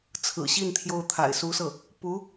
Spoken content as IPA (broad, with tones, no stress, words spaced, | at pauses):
t͡sʰɹ̩˨˩ɕi˥˩n t̪ʰjo˥ʊ̯t̪ʰa̰˨˩ɪ̯ su˧˥sɤ˥˩ | pu˧˥